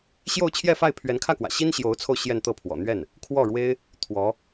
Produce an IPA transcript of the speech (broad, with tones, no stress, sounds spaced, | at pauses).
ɕ j o˥˧ ʊ̯ t͡ɕʰ j ɛ˥˧ f a˥˩ ɪ̯ pʰ ɥ ɛ˧˥ n kʰ ä˥˩ k w ä̰˨˩ ɕ i˥ n ɕ j o˧˥ ʊ̯ t͡sʰ o˧ ʊ̯ ɕ j ɛ˥˧ n t̪ ɤ˥˩ pʰ w ɔ̰˨˩ n̪ ɥ ɛ˥˩ n | kʰ w ɔ˥˩ ɻ w e˥ ɪ̯ | t̪ʰ w ɔ˧˥